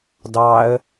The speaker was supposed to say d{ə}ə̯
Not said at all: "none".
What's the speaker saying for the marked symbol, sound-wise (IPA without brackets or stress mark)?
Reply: ɑ